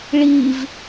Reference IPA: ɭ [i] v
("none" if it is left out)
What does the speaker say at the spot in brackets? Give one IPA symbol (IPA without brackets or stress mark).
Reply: i